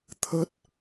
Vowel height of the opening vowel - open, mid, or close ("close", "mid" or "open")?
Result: mid